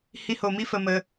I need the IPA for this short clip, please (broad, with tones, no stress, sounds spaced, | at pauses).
h i˦ h o˧ m i˦ f ə˧ m ə˧